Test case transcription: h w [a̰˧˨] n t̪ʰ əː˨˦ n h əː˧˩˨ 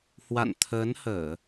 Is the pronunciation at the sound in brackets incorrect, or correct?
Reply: correct